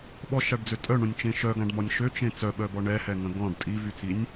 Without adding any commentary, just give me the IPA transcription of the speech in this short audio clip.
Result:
ɓɔʃaɖd͡zø tʼœɳõnʲt͡ʃẽ ʃœɡãɖmɔnʲ ʃøt͡ʃẽ t͡sœɓœbɔ ɳɛhɛŋə̃ ɡɔ̃ɖ tʼivyt͡sinʲ

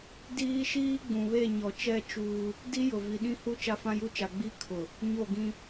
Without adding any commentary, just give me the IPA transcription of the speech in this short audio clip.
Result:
diː˦ʃiː˦ ɡ͡bũ˨βe˦˨ɲɔ˨ t͡ʃɛ˦˨ t͡ʃuː˦ | di˦ jʊ˨vi˨ɗĩ˦hu˦ t͡ʃa˦fã˦ju˦t͡ʃa˨ ɡ͡bi˦ kʰʊ˨ | ɲo˦˨ɡĩ˦

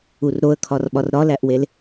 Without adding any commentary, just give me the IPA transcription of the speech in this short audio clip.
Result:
urɾoə̯kʰɒrɓɒr ɾɒlæʔwel

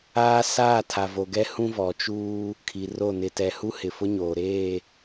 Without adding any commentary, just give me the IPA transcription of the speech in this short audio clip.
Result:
aː˦ saː˦˨tʰa˨vo˨ɡɛ˦ hũ˦vɔ˨t͡ʃuː˦ | kʰi˨ro˦˨ nɪ˨tɛ˨ hu˦hɪ˨fʊ˦ɲoː˨ ɾeː˦˨

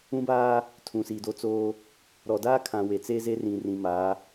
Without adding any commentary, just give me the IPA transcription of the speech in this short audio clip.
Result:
ũ˦baː˦ | tʰũ˨siː˨do˦ t͡soː˦ | ɾɔ˨daː˦kʰã˨ we˨t͡seː˦ze˦ rĩ˨rĩ˨ ma˨˦

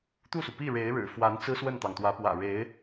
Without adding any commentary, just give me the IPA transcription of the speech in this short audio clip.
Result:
t̪u˥˩su˩pi˥˩ɻe˧˥ɪ̯ ɻɻ̩˨˩fwa˧˥n t͡sɹ̩˥swə˥˩nt̪ɑ˩ŋ t̪wä˧˥pwä̰˨˩ ɻe˧˥ɪ̯

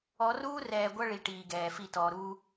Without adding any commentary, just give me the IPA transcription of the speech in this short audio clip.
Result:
ɔ˨˦ruː˦rɛː˨ ɡʷɐ˦ɭi˨ ʈiː˨ɡɛː˨fi˦˨ tɔː˨ɾuː˦

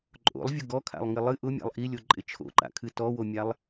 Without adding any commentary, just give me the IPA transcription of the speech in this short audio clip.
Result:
ǃʼo̰lˠvʲʊ ɡɔkʰa̰lˠŋɪ lˠɨ ʔʊmʲa̰lˠ ʔilʲoǃʼɪ t͡ʃʰo̰ǃa̰kʰɨ tɔwomʲalˠ

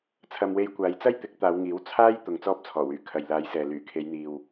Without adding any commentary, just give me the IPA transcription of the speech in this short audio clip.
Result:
t͡sʰɐ˧mwe˧j kʷaː˨˧jt͡sɐ˥jt̪ɪ˨˥k̚ t̪aː˨˧wŋiː˨˥w t͡sʰaː˥j t̪ʊ˧ŋt͡sɔː˥p̚t͡sʰɔː˨˩wyː˨˩ kʰɐ˨jlaː˨˧jsɛː˨ lyː˨˩kʰe˨˧jn̪iː˨w

